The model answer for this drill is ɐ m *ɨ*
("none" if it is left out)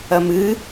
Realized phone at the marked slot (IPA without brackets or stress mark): ɨ